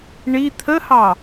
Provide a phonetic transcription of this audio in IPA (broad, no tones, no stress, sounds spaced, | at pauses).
ɳ i t̪ʰ ə h ɑ